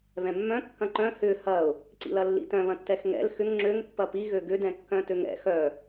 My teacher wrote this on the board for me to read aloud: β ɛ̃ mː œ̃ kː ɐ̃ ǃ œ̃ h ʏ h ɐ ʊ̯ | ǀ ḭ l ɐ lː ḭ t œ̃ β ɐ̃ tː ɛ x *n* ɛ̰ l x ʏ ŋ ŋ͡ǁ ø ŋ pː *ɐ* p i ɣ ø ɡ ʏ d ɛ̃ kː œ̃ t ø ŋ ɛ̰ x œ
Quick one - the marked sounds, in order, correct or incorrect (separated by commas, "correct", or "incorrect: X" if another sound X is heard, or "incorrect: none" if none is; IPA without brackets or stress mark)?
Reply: incorrect: ŋ, correct